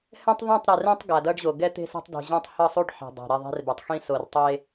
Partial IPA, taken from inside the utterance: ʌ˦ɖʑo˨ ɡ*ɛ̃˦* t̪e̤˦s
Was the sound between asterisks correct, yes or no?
no